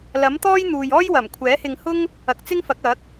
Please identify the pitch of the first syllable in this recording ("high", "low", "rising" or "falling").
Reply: rising